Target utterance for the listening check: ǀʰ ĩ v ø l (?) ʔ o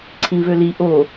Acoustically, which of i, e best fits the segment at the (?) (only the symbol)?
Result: i